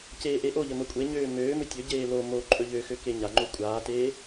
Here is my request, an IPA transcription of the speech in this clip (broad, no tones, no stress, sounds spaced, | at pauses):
c eː ʔ e ʔ o ʎ ə m ə kʷʼ e ɲ øː m øː m ɵ tʲ ɵ ɟ eː l o m o ǃʼ ɵ ʎ ø x ø k e ɲ a ŋ͡ǃ o kʷʼ aː t eː